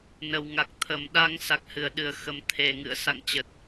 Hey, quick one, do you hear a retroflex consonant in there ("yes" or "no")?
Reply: no